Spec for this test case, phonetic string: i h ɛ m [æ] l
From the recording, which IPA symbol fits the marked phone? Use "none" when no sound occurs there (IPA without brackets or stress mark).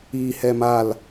a